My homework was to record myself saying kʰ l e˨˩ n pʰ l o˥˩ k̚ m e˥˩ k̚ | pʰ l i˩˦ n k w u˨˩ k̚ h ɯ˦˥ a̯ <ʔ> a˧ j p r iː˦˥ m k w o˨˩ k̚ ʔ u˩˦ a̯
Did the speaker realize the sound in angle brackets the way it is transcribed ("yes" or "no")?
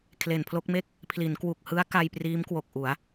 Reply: no